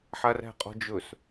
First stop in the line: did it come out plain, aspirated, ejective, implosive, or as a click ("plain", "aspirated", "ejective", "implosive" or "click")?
ejective